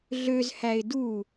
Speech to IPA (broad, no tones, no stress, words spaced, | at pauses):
ɮøzhæɪ̯ du